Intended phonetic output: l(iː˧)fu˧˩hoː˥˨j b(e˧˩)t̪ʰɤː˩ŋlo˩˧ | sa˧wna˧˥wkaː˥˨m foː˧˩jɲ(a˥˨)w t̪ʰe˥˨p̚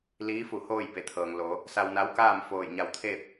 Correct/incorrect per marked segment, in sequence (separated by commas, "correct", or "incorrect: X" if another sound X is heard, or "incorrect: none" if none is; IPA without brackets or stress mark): incorrect: iː˧˥, correct, incorrect: a˧˩